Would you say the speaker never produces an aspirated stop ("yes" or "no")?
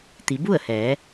yes